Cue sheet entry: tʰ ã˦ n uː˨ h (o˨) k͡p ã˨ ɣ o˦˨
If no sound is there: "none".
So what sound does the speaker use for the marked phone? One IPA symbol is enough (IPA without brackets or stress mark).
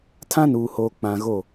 oː˨